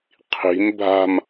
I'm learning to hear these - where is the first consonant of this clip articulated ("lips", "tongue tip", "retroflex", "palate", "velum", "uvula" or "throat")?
uvula